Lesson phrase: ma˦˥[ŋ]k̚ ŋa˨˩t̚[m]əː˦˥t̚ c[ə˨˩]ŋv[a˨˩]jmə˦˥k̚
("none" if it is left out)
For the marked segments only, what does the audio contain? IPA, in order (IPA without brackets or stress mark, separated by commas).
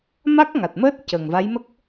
none, m, ə˨˩, a˧˥